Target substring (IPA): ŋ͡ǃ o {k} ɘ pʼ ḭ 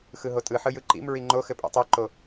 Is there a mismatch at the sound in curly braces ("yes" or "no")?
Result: yes